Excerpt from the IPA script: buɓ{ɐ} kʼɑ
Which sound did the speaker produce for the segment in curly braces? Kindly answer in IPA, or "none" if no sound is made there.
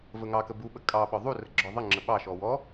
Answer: ə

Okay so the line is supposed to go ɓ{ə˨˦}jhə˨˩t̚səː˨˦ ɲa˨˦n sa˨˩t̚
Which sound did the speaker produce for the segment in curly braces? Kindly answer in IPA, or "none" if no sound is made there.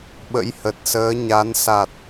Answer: ə̰˧˥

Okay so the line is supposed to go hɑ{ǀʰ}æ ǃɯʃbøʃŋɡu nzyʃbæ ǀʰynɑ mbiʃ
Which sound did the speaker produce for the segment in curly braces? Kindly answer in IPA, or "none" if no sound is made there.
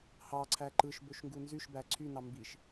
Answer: ǀʰ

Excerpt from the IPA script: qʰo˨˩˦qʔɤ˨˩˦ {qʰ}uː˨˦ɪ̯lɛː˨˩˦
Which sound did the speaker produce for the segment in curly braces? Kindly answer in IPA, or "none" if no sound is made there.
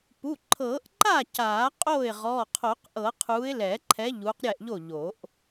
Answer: qʰ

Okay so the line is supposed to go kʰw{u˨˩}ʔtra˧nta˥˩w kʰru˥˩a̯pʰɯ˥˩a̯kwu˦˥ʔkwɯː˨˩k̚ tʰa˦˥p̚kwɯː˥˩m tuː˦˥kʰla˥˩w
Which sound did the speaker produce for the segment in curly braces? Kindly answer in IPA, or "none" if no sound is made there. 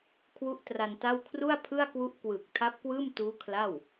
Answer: u˦˥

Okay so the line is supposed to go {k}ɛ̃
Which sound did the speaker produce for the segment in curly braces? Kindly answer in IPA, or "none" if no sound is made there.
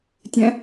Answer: tʲ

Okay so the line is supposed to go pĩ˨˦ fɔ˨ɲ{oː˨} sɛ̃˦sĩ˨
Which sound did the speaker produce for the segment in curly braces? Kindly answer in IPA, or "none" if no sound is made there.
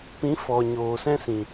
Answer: oː˨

